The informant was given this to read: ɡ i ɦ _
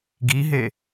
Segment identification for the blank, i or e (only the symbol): e